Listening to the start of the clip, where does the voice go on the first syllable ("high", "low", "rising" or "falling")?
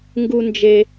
high